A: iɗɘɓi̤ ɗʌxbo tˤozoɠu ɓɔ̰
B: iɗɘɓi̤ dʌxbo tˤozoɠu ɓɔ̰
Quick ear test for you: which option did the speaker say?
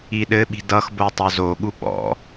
B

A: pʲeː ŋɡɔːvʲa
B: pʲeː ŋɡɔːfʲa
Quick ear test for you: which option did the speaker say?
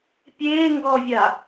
A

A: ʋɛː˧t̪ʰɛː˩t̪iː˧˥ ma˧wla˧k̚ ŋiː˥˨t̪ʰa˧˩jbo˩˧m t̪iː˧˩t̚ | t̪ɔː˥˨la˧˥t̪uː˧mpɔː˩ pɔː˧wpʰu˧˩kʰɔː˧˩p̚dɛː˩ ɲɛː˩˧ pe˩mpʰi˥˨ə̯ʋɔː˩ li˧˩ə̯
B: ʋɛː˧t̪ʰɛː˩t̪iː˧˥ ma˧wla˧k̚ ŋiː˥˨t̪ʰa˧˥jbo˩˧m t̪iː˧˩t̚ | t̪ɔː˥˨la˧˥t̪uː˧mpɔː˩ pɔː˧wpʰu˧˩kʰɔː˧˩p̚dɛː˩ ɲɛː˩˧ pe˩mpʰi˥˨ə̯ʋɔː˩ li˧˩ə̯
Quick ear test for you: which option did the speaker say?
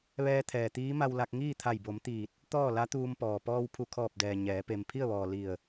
A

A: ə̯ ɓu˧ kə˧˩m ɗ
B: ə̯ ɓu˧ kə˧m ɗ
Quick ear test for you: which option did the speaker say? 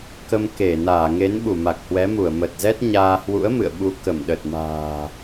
A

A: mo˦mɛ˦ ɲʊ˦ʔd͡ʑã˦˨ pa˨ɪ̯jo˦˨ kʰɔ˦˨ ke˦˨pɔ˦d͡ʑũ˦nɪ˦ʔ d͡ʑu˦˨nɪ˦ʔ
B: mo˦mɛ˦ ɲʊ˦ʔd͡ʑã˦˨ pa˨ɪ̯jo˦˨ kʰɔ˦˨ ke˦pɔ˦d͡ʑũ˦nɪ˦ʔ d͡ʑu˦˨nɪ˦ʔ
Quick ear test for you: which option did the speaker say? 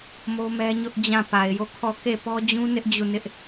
A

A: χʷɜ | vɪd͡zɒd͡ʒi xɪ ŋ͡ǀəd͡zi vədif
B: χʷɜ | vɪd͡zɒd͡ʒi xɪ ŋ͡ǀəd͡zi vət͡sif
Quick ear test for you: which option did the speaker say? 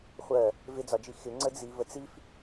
B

